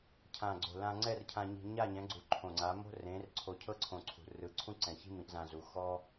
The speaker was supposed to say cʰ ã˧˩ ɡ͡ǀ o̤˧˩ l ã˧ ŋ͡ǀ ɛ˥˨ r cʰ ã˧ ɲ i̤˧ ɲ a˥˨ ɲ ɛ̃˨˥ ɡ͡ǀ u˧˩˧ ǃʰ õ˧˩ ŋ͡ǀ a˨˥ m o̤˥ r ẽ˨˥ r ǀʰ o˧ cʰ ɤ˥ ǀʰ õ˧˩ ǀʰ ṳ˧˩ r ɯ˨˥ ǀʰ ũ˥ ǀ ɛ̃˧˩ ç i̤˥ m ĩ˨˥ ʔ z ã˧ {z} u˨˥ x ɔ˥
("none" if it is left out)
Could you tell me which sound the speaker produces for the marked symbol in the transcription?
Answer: z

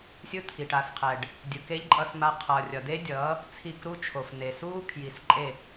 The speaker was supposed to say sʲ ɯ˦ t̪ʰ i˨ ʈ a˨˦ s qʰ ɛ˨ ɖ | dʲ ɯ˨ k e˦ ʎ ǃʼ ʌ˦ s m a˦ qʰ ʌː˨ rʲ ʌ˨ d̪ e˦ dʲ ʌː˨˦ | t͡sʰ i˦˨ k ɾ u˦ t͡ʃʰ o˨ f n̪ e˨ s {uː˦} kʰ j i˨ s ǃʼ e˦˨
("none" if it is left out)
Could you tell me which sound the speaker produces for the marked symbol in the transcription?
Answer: uː˦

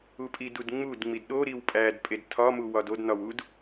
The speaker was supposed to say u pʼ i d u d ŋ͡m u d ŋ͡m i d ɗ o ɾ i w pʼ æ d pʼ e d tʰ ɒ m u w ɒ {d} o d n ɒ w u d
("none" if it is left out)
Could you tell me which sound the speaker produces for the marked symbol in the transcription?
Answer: d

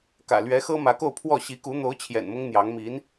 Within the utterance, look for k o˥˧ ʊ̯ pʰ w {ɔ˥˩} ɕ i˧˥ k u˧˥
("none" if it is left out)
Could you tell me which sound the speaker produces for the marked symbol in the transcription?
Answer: ɔ˥˩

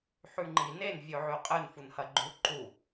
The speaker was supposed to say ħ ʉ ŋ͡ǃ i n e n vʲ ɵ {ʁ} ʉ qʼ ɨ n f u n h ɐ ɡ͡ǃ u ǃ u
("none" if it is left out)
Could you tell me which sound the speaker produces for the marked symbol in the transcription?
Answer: ʕ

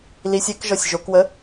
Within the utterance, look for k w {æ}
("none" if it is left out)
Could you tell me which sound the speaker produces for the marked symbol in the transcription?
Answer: ə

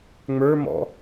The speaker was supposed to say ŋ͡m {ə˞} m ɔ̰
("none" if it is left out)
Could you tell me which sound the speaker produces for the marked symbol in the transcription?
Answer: ə˞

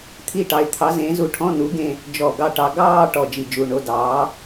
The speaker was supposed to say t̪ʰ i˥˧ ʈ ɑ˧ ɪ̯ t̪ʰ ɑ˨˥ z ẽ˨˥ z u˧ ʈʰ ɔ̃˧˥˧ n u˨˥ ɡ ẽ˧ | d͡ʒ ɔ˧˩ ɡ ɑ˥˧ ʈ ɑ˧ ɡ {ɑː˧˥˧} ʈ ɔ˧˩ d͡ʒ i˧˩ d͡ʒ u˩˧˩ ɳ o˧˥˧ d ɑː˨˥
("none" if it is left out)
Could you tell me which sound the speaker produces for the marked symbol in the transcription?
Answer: ɑː˥˧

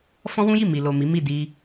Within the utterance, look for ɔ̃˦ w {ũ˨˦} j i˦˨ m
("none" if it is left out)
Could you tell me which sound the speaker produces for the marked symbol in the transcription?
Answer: ũ˦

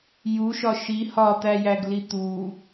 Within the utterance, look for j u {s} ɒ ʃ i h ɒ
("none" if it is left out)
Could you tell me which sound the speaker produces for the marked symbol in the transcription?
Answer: ʃ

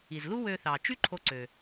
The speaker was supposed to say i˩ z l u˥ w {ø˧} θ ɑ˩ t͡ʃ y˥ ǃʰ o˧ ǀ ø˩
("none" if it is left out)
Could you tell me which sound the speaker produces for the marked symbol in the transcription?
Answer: ø˧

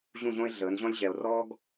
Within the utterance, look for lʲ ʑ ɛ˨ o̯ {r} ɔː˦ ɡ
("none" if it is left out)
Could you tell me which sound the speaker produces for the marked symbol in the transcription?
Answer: r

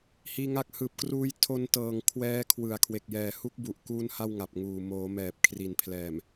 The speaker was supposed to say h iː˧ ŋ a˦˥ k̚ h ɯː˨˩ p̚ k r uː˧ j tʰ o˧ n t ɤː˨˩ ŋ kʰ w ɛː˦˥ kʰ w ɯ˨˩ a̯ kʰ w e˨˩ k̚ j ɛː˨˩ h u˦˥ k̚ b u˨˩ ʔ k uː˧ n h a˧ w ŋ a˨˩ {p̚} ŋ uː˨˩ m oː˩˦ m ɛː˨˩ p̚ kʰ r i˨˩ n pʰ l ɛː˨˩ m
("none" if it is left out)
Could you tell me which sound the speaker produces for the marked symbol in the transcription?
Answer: p̚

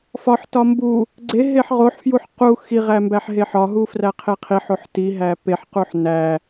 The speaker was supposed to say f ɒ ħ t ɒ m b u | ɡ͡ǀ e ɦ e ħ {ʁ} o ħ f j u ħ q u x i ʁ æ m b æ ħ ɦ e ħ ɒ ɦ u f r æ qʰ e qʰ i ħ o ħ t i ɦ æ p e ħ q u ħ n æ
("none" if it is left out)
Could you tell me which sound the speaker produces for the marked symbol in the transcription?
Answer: ʁ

